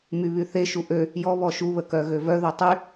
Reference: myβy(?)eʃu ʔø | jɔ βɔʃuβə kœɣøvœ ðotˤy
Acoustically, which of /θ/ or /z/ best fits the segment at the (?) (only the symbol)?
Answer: θ